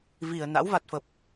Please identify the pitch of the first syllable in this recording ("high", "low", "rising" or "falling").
low